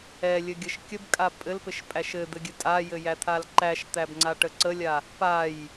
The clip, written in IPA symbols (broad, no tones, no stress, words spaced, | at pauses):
ɛlʲɘɡʲəʃ kʲəbkʼa pʼɘlpɘʃpʼæʃ ɘd̪ɘɡʲɘ tʼajɘjæt̪ʰal ǃæʃt̪æbŋ͡ǀaʈə ǀəlʲa | paj